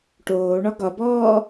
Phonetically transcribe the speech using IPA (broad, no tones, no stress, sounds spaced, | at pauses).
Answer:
ʈ oː ɳ ɒ ɡ ɒ b ɔː